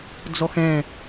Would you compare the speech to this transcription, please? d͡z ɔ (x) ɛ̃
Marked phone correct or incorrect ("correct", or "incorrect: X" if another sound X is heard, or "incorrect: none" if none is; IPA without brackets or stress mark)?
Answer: correct